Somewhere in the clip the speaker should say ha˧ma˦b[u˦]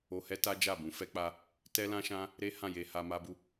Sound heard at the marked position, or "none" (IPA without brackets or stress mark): u˦